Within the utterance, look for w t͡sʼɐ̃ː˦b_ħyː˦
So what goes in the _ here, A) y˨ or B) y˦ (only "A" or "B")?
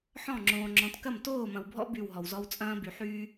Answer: A